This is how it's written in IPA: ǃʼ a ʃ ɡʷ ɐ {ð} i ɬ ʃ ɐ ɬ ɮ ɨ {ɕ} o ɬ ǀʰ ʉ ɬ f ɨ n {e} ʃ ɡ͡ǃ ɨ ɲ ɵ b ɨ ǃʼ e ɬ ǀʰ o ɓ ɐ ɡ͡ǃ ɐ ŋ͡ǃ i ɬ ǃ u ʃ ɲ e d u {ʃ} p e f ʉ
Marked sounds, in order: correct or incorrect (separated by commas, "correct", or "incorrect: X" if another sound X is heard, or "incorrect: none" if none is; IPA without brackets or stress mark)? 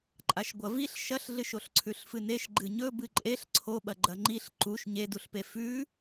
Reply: incorrect: v, incorrect: ʃ, correct, incorrect: ɬ